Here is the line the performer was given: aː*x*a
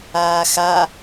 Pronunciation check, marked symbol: correct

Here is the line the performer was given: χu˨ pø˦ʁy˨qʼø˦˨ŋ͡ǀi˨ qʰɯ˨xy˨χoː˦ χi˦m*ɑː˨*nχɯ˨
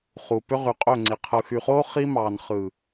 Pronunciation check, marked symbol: correct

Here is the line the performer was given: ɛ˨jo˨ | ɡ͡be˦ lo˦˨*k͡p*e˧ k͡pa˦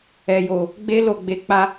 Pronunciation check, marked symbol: incorrect: ɡ͡b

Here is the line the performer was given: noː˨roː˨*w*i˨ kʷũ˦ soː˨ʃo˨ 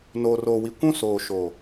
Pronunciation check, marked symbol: correct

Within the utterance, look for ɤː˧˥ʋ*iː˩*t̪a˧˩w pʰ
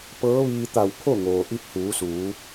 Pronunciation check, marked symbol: incorrect: iː˧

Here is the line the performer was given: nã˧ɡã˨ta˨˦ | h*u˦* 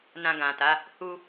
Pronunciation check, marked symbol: correct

